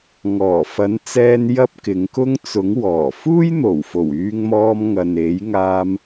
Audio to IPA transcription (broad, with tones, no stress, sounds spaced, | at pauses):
ŋ ɔː˨˩ f ɐ˨˥ n t͡s ɛː˧ n j ɐ˥ p̚ k ɪ˨˥ ŋ k ʊ˥ ŋ t͡s ʊ˨˥ ŋ w ɔː˨˩ f uː˥ j n̪ o˨˩ w f o˨˩ w yː˧ ŋ m ɔː˧ m ŋ ɐ˨ n e˨˥ j ŋ aː˧ m